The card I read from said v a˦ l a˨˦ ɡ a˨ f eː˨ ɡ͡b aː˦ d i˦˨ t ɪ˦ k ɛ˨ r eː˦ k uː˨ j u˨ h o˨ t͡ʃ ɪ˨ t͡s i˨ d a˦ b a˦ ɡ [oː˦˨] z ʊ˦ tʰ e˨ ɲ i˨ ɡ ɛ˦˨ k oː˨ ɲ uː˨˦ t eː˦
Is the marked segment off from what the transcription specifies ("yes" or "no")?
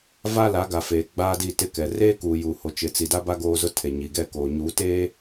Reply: yes